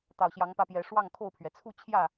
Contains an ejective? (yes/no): no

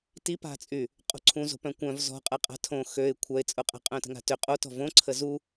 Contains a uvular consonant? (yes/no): yes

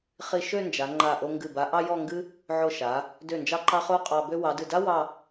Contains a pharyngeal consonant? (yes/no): yes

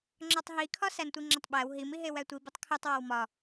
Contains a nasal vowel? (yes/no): no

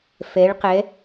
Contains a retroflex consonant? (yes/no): yes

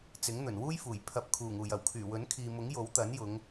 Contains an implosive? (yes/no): no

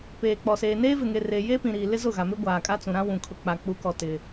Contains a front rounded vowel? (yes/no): no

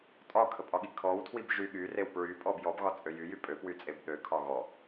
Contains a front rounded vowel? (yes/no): yes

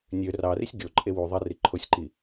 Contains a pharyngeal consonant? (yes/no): no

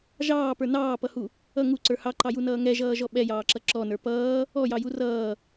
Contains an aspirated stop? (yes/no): no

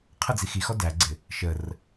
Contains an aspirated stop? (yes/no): yes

